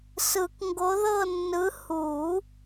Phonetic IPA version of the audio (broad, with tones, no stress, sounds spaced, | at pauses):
s ɯ˨˩˦ k ŋ ɡ o˨˦ ð ɤ˦˨ nː ɯ˨˦ h u˨˩˦